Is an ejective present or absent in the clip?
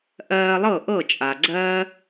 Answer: present